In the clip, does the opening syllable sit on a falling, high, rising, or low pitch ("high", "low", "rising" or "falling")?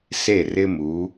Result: falling